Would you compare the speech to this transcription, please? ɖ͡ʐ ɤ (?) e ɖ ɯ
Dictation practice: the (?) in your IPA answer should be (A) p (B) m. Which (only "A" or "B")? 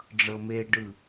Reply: B